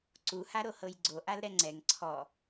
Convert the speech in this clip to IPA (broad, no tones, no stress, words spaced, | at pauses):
ǀuha ɾohɤjɡ͡ǀo ʔalɾɛŋ͡ǀɛŋ ǀʰɔ